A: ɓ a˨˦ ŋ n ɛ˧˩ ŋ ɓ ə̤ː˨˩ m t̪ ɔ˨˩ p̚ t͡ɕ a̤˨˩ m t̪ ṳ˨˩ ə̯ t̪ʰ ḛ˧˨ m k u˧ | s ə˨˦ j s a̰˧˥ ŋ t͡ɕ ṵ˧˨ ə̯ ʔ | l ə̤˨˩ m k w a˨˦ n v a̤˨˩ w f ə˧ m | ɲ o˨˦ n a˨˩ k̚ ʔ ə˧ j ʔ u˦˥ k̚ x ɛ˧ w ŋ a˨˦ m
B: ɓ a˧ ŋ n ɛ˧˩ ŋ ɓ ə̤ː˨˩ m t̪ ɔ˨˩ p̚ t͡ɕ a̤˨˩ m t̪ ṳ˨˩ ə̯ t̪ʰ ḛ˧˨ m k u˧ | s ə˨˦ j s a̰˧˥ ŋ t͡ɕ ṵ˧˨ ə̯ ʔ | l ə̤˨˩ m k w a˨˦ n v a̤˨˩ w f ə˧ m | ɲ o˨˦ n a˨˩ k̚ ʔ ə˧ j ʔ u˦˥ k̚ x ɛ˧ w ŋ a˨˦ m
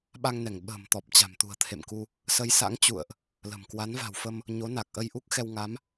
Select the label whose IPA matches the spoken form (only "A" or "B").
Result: B